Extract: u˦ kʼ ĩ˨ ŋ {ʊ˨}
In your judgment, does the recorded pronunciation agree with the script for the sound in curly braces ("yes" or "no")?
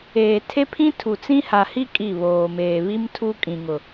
yes